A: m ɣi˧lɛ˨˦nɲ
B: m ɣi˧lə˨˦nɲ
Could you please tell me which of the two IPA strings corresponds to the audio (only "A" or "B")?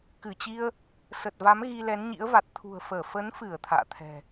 A